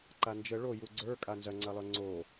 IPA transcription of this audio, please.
ǃand͡ʒə ɭoju ɡ͡ǀə˞ kʼanzɐŋ͡ǀɐlˠə˞ ŋ͡ǀo

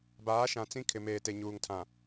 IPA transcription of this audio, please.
baː˨˦ʃã˨ t͡sĩ˦ kʰɪ˨meː˨te˨ ɲuː˨ŋtʰã˨

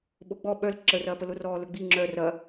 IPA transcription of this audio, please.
ɓoɡ͡bɔ ɓœl ǁə rɐːpəlʊ rɔːlɵɡ͡bi ŋ͡ǁœ rɐ

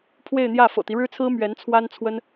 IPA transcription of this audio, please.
pʰwe˥˧ɪ̯n̪jä˥˩ fɤ̰˨˩t̪i˦ɻɻ̩˥t͡sʰɹ̩˥ mɥɛ˧˥nt͡sʰwa˥nt͡sʰwə˥n

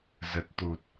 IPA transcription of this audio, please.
zə˨˩t̚t̪u˨˩t̚

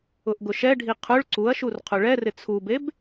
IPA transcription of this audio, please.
ʊʔɡʊʃɛɖʱi qʰʊɭ ǀuɐ̯ʃur qʰʊɭɛrɪ t͡sʰubeb

